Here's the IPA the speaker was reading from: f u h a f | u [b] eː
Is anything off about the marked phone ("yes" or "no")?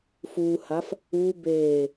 no